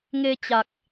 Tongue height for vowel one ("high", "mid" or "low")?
mid